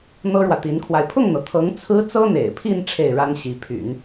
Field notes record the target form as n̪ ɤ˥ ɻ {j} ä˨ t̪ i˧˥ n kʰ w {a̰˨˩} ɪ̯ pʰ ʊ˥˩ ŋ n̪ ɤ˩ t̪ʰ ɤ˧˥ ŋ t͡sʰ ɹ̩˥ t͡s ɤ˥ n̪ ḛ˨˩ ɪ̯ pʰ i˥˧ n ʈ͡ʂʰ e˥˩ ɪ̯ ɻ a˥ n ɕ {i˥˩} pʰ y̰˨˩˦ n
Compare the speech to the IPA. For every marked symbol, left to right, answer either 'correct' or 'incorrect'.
incorrect, incorrect, incorrect

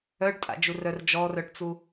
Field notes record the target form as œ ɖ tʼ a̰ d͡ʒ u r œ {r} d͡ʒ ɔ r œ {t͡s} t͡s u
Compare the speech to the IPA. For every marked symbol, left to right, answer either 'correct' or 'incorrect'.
correct, incorrect

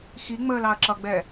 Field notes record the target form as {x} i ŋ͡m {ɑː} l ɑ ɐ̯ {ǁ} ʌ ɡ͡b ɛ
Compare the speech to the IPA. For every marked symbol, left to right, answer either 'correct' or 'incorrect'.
correct, incorrect, correct

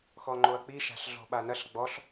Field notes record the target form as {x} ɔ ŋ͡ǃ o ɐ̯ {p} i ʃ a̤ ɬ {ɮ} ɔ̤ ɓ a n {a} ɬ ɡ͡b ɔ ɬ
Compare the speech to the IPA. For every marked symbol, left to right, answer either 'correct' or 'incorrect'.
correct, incorrect, correct, incorrect

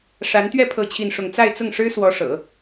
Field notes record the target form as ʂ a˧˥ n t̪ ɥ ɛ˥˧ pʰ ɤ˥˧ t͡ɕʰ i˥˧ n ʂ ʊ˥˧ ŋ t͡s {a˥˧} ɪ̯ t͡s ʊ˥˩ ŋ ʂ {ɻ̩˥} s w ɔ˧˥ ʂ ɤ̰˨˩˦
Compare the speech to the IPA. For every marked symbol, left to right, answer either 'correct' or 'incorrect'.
correct, correct

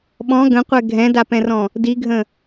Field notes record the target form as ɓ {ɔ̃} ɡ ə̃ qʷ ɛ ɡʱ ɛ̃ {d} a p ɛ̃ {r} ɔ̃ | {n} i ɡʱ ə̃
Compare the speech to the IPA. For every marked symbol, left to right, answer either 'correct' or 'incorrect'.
correct, correct, correct, incorrect

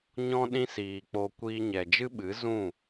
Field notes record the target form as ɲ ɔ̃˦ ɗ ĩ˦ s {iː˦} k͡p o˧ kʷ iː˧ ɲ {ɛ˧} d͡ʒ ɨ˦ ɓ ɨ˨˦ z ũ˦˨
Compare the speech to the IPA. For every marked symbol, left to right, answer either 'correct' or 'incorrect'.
incorrect, incorrect

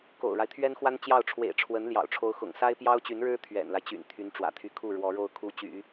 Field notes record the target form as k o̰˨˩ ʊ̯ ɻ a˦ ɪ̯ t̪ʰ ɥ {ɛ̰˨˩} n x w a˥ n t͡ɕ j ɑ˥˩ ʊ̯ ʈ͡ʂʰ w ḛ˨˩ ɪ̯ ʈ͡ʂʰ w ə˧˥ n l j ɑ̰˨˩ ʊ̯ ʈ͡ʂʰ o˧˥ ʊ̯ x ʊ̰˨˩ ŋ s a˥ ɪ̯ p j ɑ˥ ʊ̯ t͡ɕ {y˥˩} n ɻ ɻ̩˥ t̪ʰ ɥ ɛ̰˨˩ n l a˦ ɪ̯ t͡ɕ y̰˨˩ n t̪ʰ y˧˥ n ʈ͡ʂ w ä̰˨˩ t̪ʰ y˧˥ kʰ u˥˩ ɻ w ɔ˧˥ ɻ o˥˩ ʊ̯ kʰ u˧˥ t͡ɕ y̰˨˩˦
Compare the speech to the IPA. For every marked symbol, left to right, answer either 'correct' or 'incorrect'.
incorrect, incorrect

